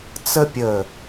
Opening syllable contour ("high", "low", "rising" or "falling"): high